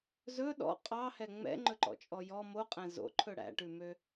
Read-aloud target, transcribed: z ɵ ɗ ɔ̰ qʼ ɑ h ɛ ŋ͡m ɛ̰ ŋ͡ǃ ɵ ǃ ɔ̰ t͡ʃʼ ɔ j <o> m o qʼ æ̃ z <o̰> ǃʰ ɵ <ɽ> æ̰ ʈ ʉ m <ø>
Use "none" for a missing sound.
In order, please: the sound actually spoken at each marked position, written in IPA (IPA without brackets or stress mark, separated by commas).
ɔ, o̰, ɽ, ø